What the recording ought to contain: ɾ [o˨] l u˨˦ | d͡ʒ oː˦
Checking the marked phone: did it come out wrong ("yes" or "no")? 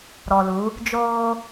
yes